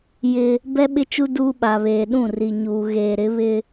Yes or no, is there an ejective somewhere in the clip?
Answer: no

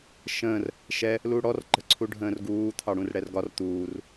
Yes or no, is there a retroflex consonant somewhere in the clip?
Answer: yes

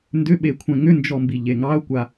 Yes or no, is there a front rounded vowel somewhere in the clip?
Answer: yes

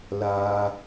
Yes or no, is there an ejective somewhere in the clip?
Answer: no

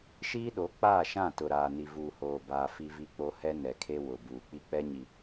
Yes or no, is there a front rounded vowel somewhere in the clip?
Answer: no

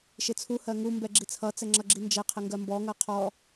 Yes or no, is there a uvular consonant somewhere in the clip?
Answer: yes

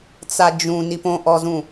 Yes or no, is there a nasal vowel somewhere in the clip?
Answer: yes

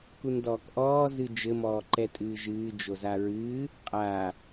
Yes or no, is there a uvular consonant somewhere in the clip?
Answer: yes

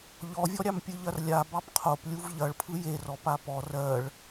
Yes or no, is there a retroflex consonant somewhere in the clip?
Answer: yes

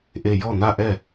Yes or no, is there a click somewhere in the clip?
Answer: no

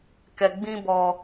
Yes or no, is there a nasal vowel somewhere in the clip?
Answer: yes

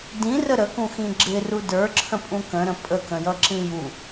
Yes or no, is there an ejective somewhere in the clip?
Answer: yes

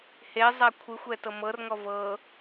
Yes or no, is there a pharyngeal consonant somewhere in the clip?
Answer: no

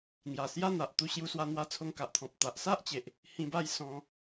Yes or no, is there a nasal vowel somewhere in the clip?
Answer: yes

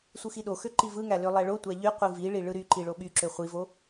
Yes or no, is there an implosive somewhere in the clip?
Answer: yes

